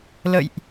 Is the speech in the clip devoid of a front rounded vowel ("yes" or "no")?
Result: yes